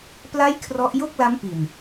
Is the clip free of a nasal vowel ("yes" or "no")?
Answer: yes